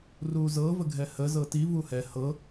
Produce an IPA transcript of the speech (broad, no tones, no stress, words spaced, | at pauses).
ruzɤ vəɡʱɛhə zɤti vuhɛ hɤ